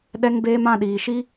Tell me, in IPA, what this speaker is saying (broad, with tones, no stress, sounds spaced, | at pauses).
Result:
ɗ ɛ˧ ŋ b eː˧ m ã˦˨ ɗ iː˨ ʃ i˦